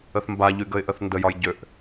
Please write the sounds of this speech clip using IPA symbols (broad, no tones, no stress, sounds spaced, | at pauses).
ə θ m b a ʎ y ɡ ə ɪ̯ ʔ ə θ n d ə j ɒ j ɟ ø ʔ